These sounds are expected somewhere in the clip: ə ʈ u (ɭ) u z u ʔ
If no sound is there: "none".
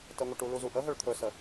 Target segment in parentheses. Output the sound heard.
l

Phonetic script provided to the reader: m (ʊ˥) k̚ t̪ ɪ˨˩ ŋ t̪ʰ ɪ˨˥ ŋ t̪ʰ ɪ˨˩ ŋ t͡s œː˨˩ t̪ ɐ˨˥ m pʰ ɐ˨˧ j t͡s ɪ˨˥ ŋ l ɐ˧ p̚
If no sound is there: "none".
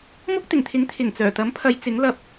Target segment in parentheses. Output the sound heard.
ʊ˥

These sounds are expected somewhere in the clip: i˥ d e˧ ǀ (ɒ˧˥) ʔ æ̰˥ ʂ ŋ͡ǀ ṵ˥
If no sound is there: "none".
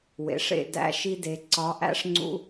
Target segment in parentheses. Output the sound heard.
ɒ˧˥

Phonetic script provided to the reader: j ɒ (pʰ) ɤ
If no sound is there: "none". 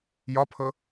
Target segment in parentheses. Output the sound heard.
pʰ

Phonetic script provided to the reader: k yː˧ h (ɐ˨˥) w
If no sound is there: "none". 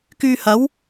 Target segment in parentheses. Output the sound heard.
ɐ˨˥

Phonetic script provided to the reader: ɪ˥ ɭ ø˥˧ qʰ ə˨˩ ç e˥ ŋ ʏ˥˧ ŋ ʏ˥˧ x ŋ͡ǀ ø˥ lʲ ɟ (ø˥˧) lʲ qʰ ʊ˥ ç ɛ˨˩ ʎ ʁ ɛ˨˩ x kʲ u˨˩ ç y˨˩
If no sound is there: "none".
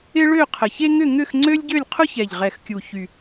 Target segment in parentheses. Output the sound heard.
ø˥˧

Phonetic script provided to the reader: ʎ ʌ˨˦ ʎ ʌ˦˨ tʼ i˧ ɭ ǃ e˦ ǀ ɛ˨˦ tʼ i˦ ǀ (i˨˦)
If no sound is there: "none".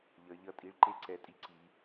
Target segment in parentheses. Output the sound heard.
i˨˦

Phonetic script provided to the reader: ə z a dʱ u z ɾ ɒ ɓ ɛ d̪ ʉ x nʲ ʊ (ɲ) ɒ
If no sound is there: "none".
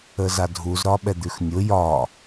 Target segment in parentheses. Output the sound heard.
j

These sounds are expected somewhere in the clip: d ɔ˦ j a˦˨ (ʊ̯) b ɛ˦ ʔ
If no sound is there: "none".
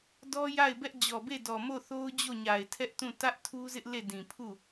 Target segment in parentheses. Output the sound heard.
ɪ̯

